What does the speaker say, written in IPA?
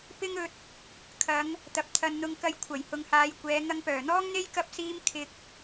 p ɪ˥ ŋ ɵ˧ t̚ | kʰ ɐ˨˧ ŋ | t̪ ɐ˨ p̚ t̪ʰ ɐ˨ n n̪ ʊ˧ ŋ k ɐ˧ j kʷʰ ɐ˨˩ j h ʊ˨ ŋ h aː˨˧ j kʷ ɛː˨˧ ŋ ɐ˧ ŋ p œː˨˩ n̪ ɔː˥ ŋ n̪ e˥ j k ɐ˥ p̚ s iː˥ m kʰ ɪ˧ k̚

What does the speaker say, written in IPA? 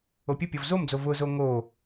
o pʲ ʊ pʲ ɔ v z o m d͡z o v ʊ z o ŋ o

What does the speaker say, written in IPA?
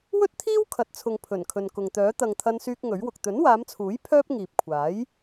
w ɵ˥ t̚ t̪ʰ iː˥ w kʰ ɐ˨ t̚ t͡sʰ ʊ˨ ŋ pʰ ɵ˨˩ n kʰ ɵ˨ n k ʊ˨ ŋ t̪ œː˨˥ t̪ ɐ˨ ŋ t̪ʰ ɐ˧ n s yː˧ k̚ ŋ ɵ˨˥ ɥ w ʊ˨ k̚ t̪ ɵ˨˥ n w aː˨˧ m t͡sʰ uː˨˥ j pʰ œː˥ p̚ ŋ iː˨ p̚ kʷʰ aː˨˥ j

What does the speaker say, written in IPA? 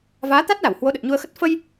v aː˨˦ t̪ a˦˥ t̚ l a˧˩ w h w o˨˦ ɗ ə˨˩ t̚ ɲ u˧ ə̯ x ə˦˥ t̚ f ə˧ j

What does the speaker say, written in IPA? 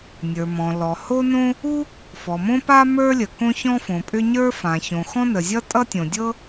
nʲ ə˞˩ m ɔ̃˩ l ɔ˩ h o˥ n õ˥ | u˥ | f ɔ˩ m õ˥ p a˥ m ə˞˥ lʲ ə˩ k õ˥ ç ɔ̃˥ f õ˩ pʼ ʏ˥ ɲ ə˞˥ f ã˩ ç õ˩ x ɔ̃˥ n ə˩ zʲ ʌ˥ tʼ ʌ˥ tʲ õ˩ dʲ ɤ˥

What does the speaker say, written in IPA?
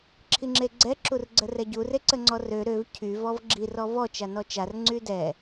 ǁʰ i ŋ͡ǁ e ɡ͡ǀ ɛ ǁ u r ɡ͡ǀ ə r ɛ ɟ u r e ǀ ə ŋ͡ǀ ɔ r ø ɾ ø v cʰ y v ɔ v ɡ͡ǁ i r ɔ v ɔ t͡ʃ a n ɔ t͡ʃ a r ŋ͡ǀ y d ɛ

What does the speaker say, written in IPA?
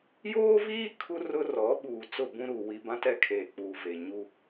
j oː˦ v iː˦ kʰ u˦ r ʊ˦ r ɔ˨˦ ɓ uː˨ t͡s ʊ˦˨ b ũ˦ ɾ uː˨ w i˦ b ã˦ t ɛ˦ kʰ eː˨ k͡p uː˨ v eː˨ ɲ u˦

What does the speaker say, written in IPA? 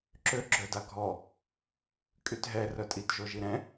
ǁ ø ɡ͡ǁ œ d a ɡʱ ɔ | kʼ y t ɦ ɛ r œ tʼ i t ʒ o ʒ i ɾ ɛ̃

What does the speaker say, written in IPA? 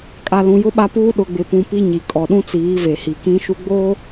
kʼ a˨ l ũ˨ j ʊ˦ ɓ a˦ p uː˦ ɗ ʊ˨ ɡ͡b ɪ˨ p ũ˨ p i˦ ɲ i˨ kʼ ɔ˨ ɗ ũ˦ t͡s iː˨˦ v e˨ h i˨ k ĩ˦ ʃ u˦ ɡ͡b oː˦

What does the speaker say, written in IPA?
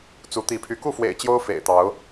t͡s u˨˦ t̪ i˨˦ pʰ y˨˦ k u˥˨ f w ḛ˨˩ ɪ̯ t͡ɕ j o˦ ʊ̯ f ḛ˨˩ ɪ̯ t̪ ɑ˨˦ ʊ̯

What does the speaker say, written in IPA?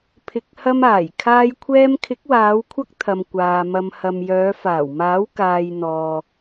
pʰ ɪ˨ k̚ h ɐ˧ m aː˨˩ j kʰ aː˧ j kʷʰ ɛː˧ m kʰ ɪ˨˥ k̚ w aː˨˧ w kʷʰ ɐ˥ k̚ t̪ʰ ɐ˨ m kʷ aː˨ m ɐ˧ m h ɐ˨ m j œː˨˧ f aː˨˩ w m aː˨˥ w k aː˨ j n̪ ɔː˨

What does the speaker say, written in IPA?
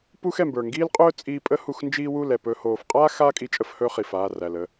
p u˦ x ɛ˨ m b ə˞˨ ŋ ɡ iː˦ l qʼ ɵː˦ t͡sʼ iː˧ pʼ ə˦ h u˧ x n d͡ʒ iː˦ w u˦˨ l ɛ˨ p ɵː˧ h oː˨ f qʼ aː˦ x aː˦ kʼ i˧ t͡ʃʼ ə˧ f h ɵ˦ χ i˨ f aː˦˨ r æ˨ l ə˧

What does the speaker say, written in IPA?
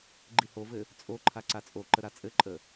ɡ͡ǃ i h o v ɘ | t͡sʼ o ǃʰ a ǀ a t͡sʼ o ǃ ə ɾ a t͡sʼ ɘ ǃʼ ə

